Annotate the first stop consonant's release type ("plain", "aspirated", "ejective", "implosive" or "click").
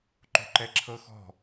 click